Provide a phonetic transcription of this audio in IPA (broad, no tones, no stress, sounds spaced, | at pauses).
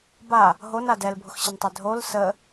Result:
b a | ɦ o n a d ɛ l bʱ ʊ x ɕ ə n tˤ e dʱ o l s ə